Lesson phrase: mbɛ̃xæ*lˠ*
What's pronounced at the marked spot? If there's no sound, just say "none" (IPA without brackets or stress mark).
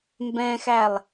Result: lˠ